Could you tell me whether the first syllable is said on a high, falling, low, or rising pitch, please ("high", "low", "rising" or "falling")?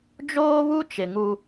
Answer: high